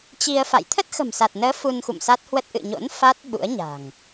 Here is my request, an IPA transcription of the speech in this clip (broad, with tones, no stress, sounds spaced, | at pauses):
t͡ɕ i˧ ə̯ f a̰˧˨ j t̪ʰ ə˦˥ t̚ x ə̤˨˩ m s a˨˩ t̚ n əː˨˦ f u˧ n x ṵ˧˨ m s a˦˥ t̚ h w ə˦˥ t̚ ʔ ɨ̰˧˨ ɲ o̰˧˥ n f a˦˥ t̚ ɓ ṵ˧˥ ə̯ ɲ a̤˨˩ ŋ